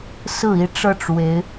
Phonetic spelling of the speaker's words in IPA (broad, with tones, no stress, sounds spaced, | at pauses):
s ɹ̩˨˩ i˦ ʈ͡ʂ ɤ˥˩ ʈ͡ʂ w e˧˥ ɪ̯